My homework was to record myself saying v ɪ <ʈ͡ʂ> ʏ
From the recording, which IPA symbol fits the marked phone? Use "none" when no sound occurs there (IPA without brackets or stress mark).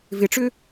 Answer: ʈ͡ʂ